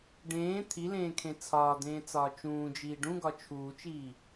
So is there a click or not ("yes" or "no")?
no